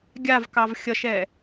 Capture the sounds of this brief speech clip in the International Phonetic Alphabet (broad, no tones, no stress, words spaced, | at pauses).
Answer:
ɡʲavkɑv xʲʌʃɛ